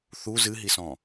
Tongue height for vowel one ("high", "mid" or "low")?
high